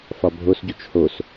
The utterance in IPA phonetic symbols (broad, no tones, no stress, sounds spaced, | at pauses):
f ɒ bʱ o s ɟ u t͡ʃ h o s